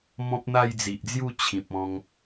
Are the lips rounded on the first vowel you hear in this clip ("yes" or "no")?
yes